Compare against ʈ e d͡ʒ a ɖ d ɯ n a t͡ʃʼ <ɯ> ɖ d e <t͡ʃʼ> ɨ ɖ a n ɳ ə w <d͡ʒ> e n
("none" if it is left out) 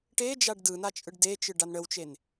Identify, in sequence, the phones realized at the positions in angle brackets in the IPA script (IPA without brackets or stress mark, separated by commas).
ɯ, t͡ʃ, t͡ʃ